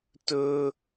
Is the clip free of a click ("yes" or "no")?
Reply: yes